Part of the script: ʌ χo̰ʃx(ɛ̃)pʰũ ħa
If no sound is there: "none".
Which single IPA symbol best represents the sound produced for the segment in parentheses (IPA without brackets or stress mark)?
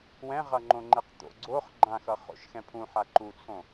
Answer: ɛ̃